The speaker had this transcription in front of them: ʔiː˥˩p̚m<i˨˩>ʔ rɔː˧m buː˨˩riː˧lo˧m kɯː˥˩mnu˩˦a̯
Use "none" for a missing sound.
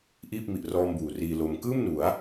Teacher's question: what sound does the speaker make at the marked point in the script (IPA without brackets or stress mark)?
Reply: i˨˩